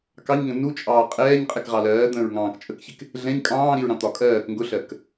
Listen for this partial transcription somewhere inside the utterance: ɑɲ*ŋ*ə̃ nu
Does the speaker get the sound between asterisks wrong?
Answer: no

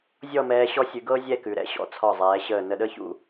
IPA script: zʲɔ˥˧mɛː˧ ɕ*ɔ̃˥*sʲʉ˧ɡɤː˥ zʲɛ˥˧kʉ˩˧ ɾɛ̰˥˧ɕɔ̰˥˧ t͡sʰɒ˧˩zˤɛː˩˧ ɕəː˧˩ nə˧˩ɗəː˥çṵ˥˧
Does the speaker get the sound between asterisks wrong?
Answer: yes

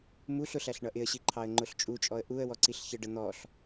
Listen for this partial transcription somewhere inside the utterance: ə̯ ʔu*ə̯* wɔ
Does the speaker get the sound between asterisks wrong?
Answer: no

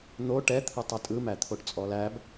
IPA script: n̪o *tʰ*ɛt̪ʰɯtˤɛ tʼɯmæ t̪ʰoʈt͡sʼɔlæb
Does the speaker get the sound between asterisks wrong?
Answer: yes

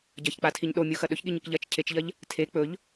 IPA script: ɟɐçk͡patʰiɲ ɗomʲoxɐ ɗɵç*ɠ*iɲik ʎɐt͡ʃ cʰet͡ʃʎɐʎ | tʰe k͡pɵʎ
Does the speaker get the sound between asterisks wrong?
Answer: no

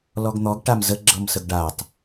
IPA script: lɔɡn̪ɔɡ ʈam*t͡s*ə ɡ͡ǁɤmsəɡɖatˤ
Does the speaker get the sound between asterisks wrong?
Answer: yes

